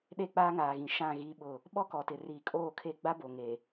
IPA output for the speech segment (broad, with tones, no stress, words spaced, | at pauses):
ɗe˦˨k͡paː˦ŋaː˨ɣĩ˨ ʃã˦˨ ɣiː˦ɓʊ˦˨ | ɓɔ˦kɔ˨tɪ˨ riː˨kʼoː˦˨kʰe˦ ɡ͡ba˦bo˨ŋe˨